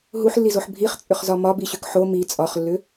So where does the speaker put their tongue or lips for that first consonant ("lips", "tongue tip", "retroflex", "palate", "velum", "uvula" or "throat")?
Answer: throat